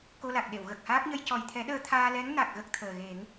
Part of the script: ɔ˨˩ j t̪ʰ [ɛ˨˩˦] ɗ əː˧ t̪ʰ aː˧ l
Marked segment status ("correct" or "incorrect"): correct